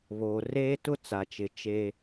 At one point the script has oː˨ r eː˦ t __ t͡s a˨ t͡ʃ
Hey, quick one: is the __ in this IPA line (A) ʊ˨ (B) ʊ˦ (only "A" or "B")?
B